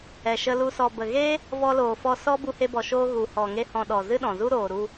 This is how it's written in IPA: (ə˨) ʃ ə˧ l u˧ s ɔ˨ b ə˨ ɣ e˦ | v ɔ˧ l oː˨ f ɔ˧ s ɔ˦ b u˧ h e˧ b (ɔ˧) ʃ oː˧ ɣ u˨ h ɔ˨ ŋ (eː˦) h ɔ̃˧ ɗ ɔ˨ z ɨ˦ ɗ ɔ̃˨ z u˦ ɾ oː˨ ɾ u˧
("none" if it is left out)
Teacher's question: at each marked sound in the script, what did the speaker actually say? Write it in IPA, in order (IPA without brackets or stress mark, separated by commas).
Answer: ɛ˨, ɔ˨, e˦